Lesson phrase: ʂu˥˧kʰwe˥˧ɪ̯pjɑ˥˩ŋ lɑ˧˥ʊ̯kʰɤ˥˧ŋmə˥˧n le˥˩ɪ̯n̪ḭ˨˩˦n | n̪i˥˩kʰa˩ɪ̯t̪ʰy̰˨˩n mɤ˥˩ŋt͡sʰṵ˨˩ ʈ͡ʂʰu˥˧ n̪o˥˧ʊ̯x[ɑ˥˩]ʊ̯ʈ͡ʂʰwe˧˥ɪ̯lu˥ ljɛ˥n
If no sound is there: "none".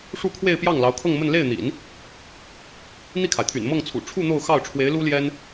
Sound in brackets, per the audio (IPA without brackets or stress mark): ɑ˥˩